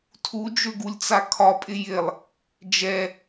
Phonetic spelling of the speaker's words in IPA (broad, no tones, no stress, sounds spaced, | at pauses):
tʰ u d͡ʒ ø ɡ u lʲ t͡s a kʰ ɒ pʼ ɪ j ɪ lˠ | d͡ʒ ɛ